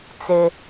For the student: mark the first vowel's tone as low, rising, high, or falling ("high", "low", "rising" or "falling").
high